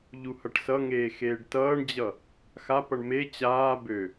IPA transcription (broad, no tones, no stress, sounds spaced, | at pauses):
ʎ u h ʌ ʈ s ʌ ŋ eː x eː ɖ t ʌː ɳ d͡ʑ ʌ | x a p ʌ ɳ m e t͡ɕ aː b ø